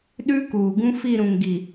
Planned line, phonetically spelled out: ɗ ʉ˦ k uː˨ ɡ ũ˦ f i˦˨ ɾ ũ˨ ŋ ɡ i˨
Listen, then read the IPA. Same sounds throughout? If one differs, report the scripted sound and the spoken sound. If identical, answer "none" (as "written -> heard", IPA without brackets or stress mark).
none